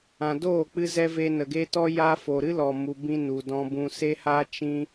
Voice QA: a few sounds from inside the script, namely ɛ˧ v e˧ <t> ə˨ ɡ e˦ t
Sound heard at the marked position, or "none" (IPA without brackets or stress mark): n